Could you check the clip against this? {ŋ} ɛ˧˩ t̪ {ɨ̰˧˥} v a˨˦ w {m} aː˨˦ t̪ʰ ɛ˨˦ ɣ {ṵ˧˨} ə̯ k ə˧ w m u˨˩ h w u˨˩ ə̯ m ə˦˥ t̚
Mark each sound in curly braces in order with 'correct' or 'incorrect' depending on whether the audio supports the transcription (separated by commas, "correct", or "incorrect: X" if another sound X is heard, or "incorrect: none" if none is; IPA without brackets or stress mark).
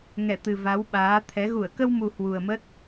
correct, incorrect: ɨ˨˩, incorrect: ɓ, incorrect: u˧˩